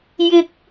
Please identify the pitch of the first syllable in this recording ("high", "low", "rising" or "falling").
high